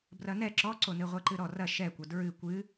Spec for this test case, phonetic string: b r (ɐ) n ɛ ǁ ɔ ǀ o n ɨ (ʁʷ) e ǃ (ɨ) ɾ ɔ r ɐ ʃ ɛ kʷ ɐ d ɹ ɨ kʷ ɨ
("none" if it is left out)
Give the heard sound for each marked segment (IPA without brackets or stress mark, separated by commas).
ɐ, ʁʷ, ɨ